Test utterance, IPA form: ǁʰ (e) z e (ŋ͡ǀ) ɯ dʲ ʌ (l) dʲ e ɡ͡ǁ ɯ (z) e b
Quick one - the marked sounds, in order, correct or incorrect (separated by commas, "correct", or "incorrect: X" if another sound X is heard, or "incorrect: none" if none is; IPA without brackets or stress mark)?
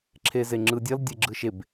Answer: correct, incorrect: ŋ͡ǁ, correct, incorrect: ʃ